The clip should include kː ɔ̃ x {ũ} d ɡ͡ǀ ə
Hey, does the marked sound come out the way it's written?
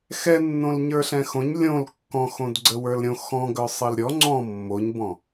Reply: no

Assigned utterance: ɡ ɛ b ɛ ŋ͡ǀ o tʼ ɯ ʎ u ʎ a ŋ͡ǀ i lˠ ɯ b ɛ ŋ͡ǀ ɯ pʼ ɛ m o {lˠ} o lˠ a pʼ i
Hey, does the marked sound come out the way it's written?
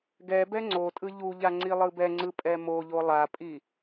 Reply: no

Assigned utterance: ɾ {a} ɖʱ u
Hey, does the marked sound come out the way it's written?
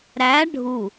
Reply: no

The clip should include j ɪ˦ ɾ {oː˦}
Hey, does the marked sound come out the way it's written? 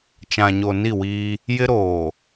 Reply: no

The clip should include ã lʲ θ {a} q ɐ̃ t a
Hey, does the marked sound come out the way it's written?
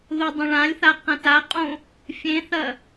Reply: yes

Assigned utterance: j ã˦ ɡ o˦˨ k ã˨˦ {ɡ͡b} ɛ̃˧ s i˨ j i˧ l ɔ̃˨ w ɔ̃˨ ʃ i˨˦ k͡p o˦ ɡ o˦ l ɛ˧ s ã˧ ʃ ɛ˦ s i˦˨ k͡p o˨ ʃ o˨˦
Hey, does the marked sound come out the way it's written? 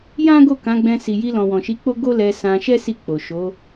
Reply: yes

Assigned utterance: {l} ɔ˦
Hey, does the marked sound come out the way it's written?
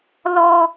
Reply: yes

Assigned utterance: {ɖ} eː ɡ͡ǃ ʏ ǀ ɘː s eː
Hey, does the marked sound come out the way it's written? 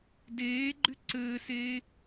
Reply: no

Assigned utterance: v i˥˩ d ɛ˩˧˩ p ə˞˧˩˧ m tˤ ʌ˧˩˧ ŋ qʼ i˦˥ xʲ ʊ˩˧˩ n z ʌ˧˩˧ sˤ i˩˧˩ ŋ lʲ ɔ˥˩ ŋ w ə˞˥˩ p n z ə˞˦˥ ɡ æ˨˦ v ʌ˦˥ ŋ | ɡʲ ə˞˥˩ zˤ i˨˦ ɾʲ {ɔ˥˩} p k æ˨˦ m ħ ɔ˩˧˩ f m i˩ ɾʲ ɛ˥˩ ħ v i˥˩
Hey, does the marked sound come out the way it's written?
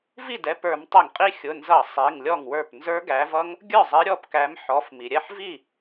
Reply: yes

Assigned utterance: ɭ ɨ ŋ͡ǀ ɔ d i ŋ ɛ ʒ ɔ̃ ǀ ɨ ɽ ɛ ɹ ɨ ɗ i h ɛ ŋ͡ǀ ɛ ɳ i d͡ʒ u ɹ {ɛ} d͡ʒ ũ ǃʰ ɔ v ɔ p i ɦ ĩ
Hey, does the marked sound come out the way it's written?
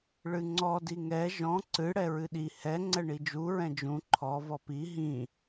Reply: no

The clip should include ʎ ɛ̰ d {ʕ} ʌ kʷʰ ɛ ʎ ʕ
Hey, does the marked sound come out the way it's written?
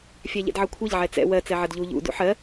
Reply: yes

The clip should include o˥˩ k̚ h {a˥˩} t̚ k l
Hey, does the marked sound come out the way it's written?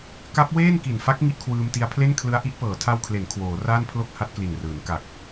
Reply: no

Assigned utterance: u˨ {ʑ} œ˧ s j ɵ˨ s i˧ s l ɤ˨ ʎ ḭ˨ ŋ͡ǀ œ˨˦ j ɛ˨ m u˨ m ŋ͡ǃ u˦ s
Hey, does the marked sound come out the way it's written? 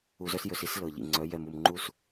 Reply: no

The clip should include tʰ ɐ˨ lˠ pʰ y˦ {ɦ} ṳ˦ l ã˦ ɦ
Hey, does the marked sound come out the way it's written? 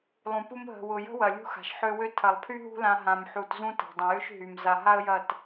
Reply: yes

